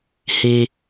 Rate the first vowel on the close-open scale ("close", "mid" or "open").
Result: close